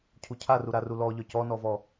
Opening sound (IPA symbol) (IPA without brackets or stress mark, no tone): cʰ